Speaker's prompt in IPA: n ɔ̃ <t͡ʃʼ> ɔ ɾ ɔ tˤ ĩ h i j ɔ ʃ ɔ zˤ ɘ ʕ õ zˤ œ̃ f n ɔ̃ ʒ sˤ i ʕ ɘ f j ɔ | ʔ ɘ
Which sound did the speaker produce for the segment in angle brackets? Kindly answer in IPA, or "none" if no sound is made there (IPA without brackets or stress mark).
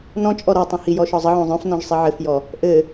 t͡ʃʼ